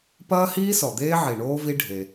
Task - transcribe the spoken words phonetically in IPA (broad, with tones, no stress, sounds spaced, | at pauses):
p ɐː˦ h iː˦ s ɔ˨ d̪ eː˦ ʕ i˨ ɳ oː˦ v i˦ ɖʱ e˦